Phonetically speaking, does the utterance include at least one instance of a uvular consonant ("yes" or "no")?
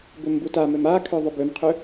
yes